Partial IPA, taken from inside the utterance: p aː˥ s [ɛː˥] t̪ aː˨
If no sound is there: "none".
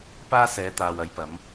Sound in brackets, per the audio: ɛː˨˧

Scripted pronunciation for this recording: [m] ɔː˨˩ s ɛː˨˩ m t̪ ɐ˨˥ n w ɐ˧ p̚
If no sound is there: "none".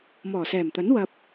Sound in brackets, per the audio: m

